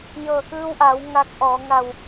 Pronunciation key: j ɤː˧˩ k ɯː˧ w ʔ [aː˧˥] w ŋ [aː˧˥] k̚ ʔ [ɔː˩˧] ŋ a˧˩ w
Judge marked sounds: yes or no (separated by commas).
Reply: no, yes, yes